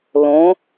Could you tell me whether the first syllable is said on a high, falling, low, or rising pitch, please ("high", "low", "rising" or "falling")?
rising